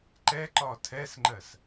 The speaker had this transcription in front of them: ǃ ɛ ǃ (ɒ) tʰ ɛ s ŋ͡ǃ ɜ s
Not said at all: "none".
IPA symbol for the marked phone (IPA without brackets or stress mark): ɒ